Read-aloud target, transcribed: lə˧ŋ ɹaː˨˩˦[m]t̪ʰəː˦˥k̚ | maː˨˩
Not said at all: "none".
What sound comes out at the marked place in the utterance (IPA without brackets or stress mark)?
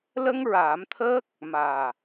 m